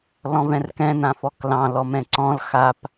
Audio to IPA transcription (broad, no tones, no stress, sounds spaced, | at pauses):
l ɔ̃ v ɛ̃ r k ɛ̃ n ã f ɔ k l ɑ̃ l ɔ m ɛ̃ ǀ ɔ̃ l x a p